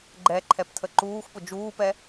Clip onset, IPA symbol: ɡ͡ǃ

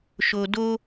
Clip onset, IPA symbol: ʃ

